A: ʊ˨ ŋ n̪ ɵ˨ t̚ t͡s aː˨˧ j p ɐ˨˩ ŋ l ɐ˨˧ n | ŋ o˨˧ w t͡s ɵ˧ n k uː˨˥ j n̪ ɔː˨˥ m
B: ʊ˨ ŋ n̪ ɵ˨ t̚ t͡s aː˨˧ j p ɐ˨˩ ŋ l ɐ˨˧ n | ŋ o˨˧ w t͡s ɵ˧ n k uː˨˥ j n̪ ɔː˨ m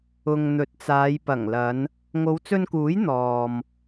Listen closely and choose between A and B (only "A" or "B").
B